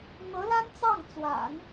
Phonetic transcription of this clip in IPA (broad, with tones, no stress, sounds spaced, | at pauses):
n̪ ɤ˧˥ l a˥ n t͡s ɑ˥˩ ŋ t͡s w a̰˨˩˦ n